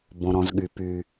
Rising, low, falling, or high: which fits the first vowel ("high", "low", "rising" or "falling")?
low